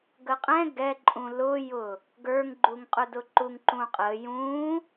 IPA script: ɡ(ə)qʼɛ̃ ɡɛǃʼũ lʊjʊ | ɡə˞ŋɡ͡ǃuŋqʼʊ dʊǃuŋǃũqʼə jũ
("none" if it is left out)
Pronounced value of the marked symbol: ə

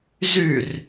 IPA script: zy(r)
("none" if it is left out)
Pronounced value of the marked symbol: r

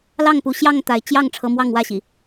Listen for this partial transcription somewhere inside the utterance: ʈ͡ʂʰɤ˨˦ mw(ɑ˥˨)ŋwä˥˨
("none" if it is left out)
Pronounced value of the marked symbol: ɑ˥˨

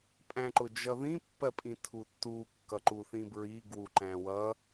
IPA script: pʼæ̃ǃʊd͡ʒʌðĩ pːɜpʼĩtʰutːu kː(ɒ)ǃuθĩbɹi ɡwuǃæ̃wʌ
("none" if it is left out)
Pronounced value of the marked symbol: ʌ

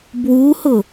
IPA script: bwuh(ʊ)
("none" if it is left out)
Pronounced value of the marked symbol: ʊ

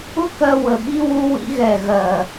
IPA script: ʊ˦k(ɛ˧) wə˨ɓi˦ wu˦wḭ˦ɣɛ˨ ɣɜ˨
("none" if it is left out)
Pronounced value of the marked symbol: ɜ˧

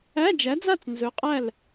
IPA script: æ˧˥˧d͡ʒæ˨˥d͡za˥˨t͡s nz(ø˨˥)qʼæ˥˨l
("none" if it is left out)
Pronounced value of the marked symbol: ɵ˨˥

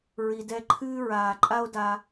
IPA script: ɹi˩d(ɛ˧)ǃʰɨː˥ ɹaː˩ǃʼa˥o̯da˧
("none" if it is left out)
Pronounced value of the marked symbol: ɛ˧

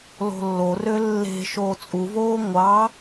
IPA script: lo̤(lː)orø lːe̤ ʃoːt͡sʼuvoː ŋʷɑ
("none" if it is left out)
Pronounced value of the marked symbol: lː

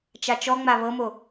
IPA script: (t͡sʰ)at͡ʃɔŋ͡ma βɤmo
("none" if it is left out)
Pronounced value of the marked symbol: t͡ʃ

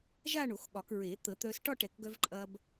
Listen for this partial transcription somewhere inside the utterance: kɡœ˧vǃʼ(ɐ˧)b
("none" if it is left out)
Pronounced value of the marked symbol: ɐ˧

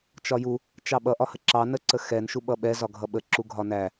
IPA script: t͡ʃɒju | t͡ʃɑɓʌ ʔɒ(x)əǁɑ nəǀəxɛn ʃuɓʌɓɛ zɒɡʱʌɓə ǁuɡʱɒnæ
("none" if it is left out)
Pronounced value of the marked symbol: h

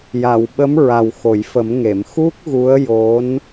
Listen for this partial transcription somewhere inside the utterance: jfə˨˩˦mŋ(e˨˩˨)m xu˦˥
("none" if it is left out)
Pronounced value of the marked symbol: e˨˩˨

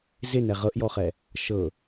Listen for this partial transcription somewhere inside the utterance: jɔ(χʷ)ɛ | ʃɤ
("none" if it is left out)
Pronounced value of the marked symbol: χ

